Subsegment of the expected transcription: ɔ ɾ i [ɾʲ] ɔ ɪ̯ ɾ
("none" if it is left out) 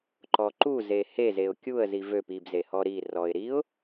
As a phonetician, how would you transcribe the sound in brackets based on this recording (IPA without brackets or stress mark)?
r